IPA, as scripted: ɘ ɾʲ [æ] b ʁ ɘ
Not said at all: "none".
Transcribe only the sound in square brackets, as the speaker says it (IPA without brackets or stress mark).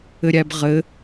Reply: æ